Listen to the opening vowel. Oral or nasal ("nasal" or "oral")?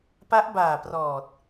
oral